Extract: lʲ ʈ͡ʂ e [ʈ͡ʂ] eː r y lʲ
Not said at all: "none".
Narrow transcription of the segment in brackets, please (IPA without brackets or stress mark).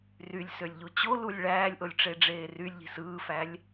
ɖ͡ʐ